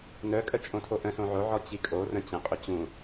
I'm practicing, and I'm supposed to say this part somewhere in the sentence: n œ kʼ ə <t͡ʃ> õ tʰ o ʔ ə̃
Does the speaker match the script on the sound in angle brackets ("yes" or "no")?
no